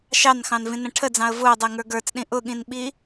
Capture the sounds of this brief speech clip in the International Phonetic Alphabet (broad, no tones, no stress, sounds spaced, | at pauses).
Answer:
ʃ ɑ n x ɑ̃ n v ĩ n ə̃ ʈʰ ə d͡z ɑ̃ ə̯ v ʊː dˤ ɛ ŋ ə˞ ɡ ə˞ t͡s ɗ ĩ ʔ ʊ ɠ ĩ n ɓ i